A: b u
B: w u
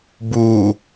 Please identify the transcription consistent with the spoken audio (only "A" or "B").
A